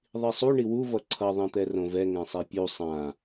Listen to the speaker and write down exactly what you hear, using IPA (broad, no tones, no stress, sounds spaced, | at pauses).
ðˤ i sˤ u ɳ i w u v ʌ ǀʰ ʌ ðˤ ẽ t̪ ɛ r õ v ɛ ŋ ɛ̃ sˤ ɛ pʲ u sˤ ã